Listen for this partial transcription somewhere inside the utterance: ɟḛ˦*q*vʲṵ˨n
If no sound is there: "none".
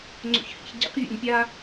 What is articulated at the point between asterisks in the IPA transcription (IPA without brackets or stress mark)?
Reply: q